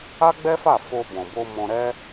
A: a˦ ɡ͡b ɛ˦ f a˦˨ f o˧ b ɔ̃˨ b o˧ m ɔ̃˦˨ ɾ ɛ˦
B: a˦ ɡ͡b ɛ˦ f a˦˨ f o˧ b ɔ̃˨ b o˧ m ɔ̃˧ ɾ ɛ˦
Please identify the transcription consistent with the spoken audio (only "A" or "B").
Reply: B